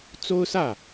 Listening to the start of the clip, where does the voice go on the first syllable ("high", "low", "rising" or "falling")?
high